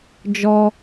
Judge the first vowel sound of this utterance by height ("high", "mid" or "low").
mid